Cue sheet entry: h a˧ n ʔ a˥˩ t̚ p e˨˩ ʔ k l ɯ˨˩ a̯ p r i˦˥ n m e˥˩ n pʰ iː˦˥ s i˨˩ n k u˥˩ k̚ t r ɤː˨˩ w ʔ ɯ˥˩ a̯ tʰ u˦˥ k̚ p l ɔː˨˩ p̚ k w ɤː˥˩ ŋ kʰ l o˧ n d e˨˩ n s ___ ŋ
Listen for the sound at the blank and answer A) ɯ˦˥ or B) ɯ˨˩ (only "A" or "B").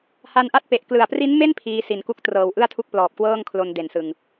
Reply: B